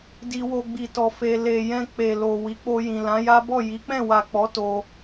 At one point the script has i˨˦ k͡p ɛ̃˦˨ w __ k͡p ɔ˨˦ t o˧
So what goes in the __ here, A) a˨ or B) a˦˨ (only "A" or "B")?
A